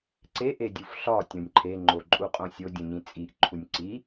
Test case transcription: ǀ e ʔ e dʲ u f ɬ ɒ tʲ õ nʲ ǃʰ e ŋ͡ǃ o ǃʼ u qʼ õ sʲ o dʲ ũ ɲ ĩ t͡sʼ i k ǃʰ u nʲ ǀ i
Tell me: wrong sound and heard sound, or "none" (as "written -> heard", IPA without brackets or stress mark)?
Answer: k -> ʔ